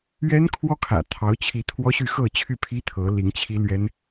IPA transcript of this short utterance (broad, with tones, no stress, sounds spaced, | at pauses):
ɥ ɛ˥ n kʰ w ɔ˥ kʰ ä̰˨˩ t̪ʰ ɑ˧˥ ʊ̯ t͡ɕʰ i˧˥ t̪ʰ w ɔ˥ ɕ y˥˧ x ɤ˥˧ t͡ɕʰ y˥˩ pʰ i˥ t̪ʰ ɤ˧˥ l i˧˥ ŋ t͡ɕʰ i˥ l ɥ ɛ˥ n